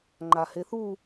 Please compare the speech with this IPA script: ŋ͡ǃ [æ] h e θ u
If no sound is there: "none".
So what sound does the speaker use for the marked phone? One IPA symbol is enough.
a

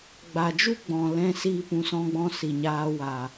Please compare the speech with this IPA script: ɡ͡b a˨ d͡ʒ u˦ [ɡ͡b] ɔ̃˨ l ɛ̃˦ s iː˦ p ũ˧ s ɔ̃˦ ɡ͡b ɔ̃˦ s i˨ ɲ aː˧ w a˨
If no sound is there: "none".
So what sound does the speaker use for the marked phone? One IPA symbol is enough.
ɡ͡b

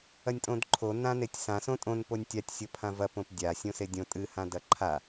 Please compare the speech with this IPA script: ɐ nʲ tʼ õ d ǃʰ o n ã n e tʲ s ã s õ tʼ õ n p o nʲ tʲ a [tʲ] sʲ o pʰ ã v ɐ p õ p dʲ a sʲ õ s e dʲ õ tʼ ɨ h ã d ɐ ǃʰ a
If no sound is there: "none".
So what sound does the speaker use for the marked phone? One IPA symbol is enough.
tʲ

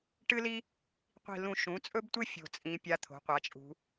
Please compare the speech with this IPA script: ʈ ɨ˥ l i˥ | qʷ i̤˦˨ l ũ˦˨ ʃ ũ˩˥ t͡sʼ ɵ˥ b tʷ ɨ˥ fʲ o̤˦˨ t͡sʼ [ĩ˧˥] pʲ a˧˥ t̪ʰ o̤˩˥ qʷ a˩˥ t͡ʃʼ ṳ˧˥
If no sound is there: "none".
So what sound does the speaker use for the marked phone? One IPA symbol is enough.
ĩ˧˥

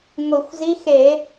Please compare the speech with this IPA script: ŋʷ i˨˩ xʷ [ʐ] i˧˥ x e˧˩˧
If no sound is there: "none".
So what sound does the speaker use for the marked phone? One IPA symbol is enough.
z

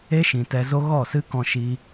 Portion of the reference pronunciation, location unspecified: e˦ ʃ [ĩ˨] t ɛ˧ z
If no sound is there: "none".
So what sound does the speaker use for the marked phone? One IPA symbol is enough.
ĩ˨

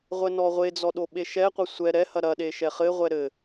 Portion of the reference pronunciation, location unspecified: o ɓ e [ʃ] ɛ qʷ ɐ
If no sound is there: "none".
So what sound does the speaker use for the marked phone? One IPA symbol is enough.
ʃ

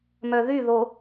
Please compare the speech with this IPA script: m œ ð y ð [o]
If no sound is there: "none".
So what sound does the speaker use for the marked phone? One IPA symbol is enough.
o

